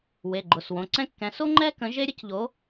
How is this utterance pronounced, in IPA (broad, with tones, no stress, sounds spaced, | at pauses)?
w e˩˧˩ ɡ͡ǃ ʊ˩˧˩ s w õ˩˧˩ ǀ ɛ̃˥ kː ɛ̃˨˥ s o˥ ŋ͡ǃ ɛ˥ k ə̃˨˥ ʒ e˥ ɾʲ ə˥ c ʎ o˨˥